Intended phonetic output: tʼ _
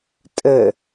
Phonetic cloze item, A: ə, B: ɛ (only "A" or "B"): A